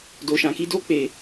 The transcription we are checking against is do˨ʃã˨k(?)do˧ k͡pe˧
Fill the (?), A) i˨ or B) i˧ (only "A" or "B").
B